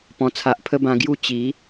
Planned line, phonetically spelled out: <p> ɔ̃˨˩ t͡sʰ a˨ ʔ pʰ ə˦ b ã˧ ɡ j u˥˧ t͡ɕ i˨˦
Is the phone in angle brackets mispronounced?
no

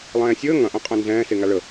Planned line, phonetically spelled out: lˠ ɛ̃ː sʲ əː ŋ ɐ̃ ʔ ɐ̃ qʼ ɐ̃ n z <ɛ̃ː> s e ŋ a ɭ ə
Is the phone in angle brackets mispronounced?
no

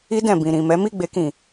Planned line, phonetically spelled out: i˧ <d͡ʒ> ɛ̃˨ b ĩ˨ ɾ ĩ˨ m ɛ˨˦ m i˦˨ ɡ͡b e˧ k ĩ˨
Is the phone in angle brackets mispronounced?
yes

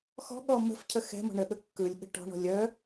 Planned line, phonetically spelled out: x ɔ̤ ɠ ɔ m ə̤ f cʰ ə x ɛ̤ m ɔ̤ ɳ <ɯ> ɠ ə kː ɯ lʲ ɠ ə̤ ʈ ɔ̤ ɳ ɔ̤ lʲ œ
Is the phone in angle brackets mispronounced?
yes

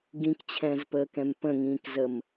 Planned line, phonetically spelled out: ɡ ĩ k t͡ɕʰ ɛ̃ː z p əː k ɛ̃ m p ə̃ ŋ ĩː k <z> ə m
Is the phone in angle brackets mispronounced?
no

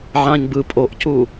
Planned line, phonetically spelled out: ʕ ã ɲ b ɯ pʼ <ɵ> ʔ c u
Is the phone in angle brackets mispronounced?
yes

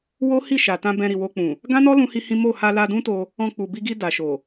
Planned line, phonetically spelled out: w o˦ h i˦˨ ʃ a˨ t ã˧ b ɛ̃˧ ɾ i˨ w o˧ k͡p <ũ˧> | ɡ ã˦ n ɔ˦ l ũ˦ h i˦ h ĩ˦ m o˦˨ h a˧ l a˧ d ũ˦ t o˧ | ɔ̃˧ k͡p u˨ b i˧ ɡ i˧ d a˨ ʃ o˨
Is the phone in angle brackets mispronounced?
yes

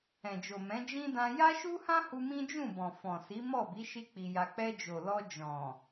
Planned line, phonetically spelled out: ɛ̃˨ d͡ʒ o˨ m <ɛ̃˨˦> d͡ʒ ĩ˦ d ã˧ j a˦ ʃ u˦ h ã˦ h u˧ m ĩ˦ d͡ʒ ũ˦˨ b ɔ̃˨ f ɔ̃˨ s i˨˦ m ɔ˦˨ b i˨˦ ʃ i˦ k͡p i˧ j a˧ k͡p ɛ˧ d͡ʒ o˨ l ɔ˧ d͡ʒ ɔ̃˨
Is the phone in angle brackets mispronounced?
no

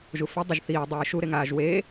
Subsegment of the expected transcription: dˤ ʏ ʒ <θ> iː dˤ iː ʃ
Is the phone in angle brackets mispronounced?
no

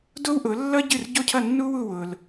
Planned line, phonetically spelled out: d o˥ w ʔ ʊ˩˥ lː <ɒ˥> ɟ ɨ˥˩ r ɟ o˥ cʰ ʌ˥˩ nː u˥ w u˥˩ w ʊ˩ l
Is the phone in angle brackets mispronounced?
yes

